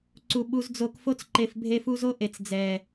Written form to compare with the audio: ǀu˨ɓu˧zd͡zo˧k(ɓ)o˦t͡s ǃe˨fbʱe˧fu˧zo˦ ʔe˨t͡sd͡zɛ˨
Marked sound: incorrect: f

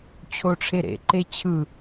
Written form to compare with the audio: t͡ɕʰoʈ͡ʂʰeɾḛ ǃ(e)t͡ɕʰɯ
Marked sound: correct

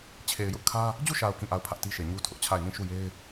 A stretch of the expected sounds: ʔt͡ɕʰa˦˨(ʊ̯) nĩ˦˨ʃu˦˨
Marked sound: incorrect: ɪ̯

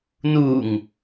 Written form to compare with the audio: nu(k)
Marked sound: incorrect: ŋ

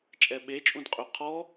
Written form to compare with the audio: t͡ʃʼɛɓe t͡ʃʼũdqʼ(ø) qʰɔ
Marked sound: correct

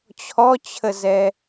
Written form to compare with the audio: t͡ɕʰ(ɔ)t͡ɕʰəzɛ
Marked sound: correct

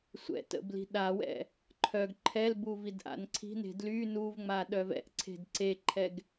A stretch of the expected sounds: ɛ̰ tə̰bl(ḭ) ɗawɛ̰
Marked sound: incorrect: i̤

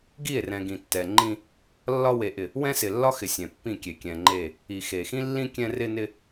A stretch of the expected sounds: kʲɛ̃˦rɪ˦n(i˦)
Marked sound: incorrect: ɪ˦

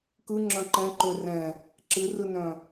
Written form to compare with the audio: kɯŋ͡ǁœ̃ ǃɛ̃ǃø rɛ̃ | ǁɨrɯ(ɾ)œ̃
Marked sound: incorrect: n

